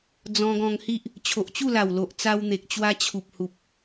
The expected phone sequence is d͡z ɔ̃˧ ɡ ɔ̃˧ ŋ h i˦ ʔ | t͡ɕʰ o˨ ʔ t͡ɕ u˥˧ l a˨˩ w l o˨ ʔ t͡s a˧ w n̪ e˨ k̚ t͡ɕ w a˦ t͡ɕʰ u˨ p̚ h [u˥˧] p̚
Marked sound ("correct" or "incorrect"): incorrect